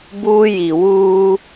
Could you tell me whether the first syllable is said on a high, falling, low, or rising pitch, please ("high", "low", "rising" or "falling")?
high